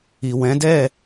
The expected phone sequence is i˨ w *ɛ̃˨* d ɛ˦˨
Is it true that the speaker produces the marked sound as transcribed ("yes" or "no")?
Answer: no